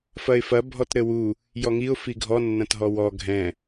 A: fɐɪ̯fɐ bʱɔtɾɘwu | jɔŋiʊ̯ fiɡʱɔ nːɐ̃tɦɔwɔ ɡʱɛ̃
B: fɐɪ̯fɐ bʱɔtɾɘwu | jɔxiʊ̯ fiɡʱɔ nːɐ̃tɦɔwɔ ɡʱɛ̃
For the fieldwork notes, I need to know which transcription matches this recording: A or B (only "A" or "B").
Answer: A